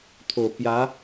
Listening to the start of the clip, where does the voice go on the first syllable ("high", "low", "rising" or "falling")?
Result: low